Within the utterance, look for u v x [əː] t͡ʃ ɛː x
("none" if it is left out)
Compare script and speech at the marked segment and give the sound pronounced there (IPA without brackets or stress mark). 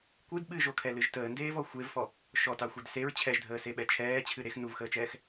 əː